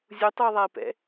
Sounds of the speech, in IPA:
zʲ u tˤ u e̯ ðˤ a e̯ p ɛ̰

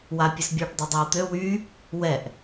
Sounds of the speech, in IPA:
w a pʲ œ s bʲ ɔ ɖ dˤ ɛ dˤ i w t̪ ø w y | w ɛ ʔ

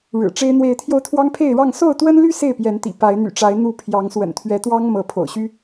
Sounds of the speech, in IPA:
ɻ ɻ̩˨˩ ʈ͡ʂ e˦ ɪ̯ n̪ w e˨˦ ɪ̯ t̪ʰ j o˧ ʊ̯ t̪ʰ w ɑ˦ ŋ pʰ e˥˨ ɪ̯ ɻ ɑ˥˨ ŋ s o˥˨ ʊ̯ t̪ w ə˦ n l y˦ s e˥˨ ɪ̯ p j ɛ˨˦ n t̪ ḭ˨˩ p a˨˦ ɪ̯ n̪ y̰˨˩ ʈ͡ʂ a˨˦ ɪ̯ n̪ u˥˨ pʰ j ɑ˨˦ ŋ s w ə̰˨˩ n t̪ʰ ɥ ɛ˨˦ t̪ w ɑ˦ ŋ m ɤ˨˦ pʰ o̰˨˩ ʊ̯ ɕ y˦

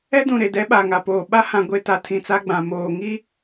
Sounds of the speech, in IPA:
ɛ˦ d ũ˨ ɾ e˨ d ɛ˨˦ ɓ a˨ ŋ a˨ p oː˨ ɓ a˦ h ã˨ ɡʷ e˨ t a˨ tʰ ĩ˨ t͡s a˦ ɡ͡b ã˨ m oː˨ ŋ i˦

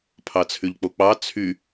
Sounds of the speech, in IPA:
pʰ ɑ t͡sʰ y ʎ k͡p o k͡p ɑ t͡sʰ y

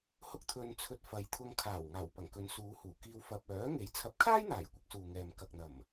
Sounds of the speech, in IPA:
h ʊ˥ k̚ t̪ʰ ɵ˧ n t͡sʰ ɵ˧ t̚ f ɐ˨˧ j t̪ʰ ʊ˧ ŋ kʰ aː˨˩ w ŋ aː˨˩ w p ɐ˨˩ ŋ k ɵ˨˧ n s uː˨˧ h uː˨˩ k iː˧ w f ɐ˧ p̚ œː˨˥ ŋ e˨˥ j t͡sʰ ɐ˨˥ p̚ kʰ aː˥ j n̪ aː˨˩ j kʷ ɪ˨˥ k̚ s uː˨ ŋ ɛː˨ m k ɐ˨ k̚ n̪ ɐ˨˩ m

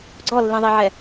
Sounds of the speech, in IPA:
ɡ͡ǀ ɔ lː ĩ ðˤ i ʕ ɛ

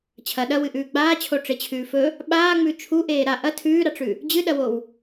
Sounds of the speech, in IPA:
t͡ɕʰ ɐ ɗ ɐ w ɨ ʔ ʉː ɡ͡b aː t͡ɕʰ o ʈ͡ʂ e t͡ɕʰ ʉː f ɵ | ɓ aː ŋ͡m ʉ t͡ʃʰ u ʔ eː ɾ a ʔ ɐ tʰ ʉː ɾ a ʈ͡ʂ ʉ | d͡ʑ ɨ ɗ ɐ w o w

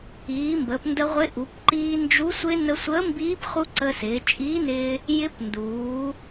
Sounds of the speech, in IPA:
iː˩˧ m b əː˩˧ p n d ə˧ ʁʷ ɪ˧˥ ʔ u˩˧ p ǃ iː˧ n d͡ʒ u˧˥ sʷ ɪ˧ n ə˧ sʷ əː˧˥ m b iː˧˥ p χ u˧ ǀ ə˧ s ɪː˩˧ t͡ʃʼ iː˧˥ n ɪː˧ | j ɪ˧˥ p n d uː˩˧

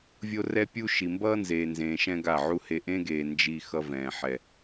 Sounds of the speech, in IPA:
vʲ o˦ r ɛ˦ pʲ u˦ ʃ i˨ m b ʌː˦ n z eː˨ n z ẽː˨ ʃ ɛ̃˦ ɡ a˦˨ ʕ u˦ h e˧ ʔ ẽ˦ ɡ eː˨ n d͡ʒ i˧ x ʌ˦ v ɛ̃ː˨ ħ ɛ˨

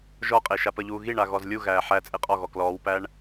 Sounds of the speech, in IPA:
ʒ ɔ qʼ e ʃ a p ə ʎ uː ɣ i ɳ a ɣ ɔ z lʲ u ɣ æː ħ æ t͡sʼ e qʼ ɔ ɣ ɔ k l ɔː w p æ ɳ

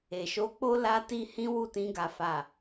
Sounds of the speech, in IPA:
e˨ ʃ o˨˦ k͡p o˦ l a˦ t i˦ h ĩ˦ w u˦˨ t ĩ˧ ɡ a˨ f a˨

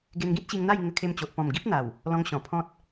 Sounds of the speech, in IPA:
ɡ e˧ n ɡ ĩ˦ t̚ ɕ i˧ ŋ n̪ a˥˧ j ŋ ə˧ kʰ e˧ m t͡ɕ o˨ ʔ p ɔ̃˨˩ m ɡ i˦ p̚ n̪ a˨˩ w | l ɔ̃˧ ŋ ɕ ɔ̃˨˩ pʰ ɔ̃˦ t̚

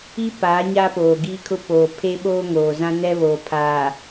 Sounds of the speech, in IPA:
i˦ p aː˨˦ ɲ aː˦ p oː˨ ɡ iː˦ kʰ ʊ˦ p oː˨ pʰ e˦ ɓ oː˦ ŋ oː˨ z ã˦ n ɛ˦ β oː˨ pʰ aː˨

